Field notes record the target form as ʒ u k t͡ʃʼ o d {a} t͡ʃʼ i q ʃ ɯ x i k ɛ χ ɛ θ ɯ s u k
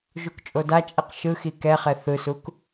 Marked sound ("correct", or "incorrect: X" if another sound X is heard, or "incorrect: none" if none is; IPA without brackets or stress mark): correct